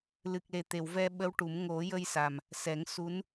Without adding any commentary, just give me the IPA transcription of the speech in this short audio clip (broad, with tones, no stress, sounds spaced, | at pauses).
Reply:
l ɨ˨˩ k̚ l e˨˩ t̪ e˨˩˨ w v ɛ˧ ɓ ə˧˥ w ʈ u˨˩˦ m ŋ o˨˩˦ j ə˧ j s a˨˩ m | s ɛ˨˩˦ ŋ s u˧˥ n